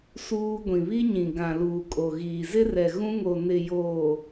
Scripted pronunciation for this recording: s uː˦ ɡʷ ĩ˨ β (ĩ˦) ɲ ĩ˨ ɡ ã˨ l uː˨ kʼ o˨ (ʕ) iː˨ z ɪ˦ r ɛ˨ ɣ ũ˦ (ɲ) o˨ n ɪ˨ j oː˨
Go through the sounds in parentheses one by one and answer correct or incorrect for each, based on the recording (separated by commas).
incorrect, incorrect, incorrect